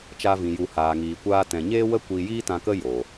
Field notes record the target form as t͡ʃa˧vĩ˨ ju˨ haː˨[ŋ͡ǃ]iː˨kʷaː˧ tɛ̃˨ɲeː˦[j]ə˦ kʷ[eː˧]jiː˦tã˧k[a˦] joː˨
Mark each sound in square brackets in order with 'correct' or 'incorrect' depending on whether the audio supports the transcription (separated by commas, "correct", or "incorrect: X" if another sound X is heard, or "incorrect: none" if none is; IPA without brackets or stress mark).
incorrect: ŋ, incorrect: w, incorrect: iː˧, incorrect: ə˦